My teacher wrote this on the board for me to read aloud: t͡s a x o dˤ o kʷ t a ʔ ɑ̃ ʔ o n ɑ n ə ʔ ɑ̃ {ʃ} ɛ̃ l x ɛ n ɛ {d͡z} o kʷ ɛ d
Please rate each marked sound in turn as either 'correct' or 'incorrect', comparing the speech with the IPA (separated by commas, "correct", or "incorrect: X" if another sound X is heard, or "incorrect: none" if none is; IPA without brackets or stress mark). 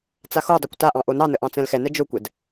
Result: incorrect: t͡s, incorrect: d͡ʒ